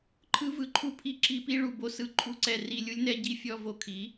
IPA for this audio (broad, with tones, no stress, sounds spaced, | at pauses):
ǃʰ ɯ˦ v ɯ˧ ǃʰ u˦ pʰ i˦ ǁ i˧ p i˦ ɭ u˨ b o˧ s ɯ˨ ǃʰ u˦ ǀ ɛ˧ r i˧ lʲ u˦ lʲ n ɛ˦ ɟ i˦ fʲ ɔ˧ v o˨ kʰ i˨˦